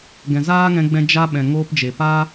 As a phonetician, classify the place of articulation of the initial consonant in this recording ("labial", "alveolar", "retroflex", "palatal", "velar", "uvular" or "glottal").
velar